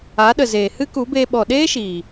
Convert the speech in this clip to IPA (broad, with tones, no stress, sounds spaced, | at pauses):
a˨˦ ɗ ə˨ z eː˨ h ɨ˦ k u˨˦ b eː˧ ɓ ɔ˨ ɗ eː˦ ʃ iː˨